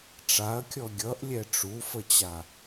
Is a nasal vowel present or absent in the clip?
absent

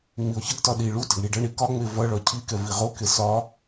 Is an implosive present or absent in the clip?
present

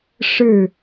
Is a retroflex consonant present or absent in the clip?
present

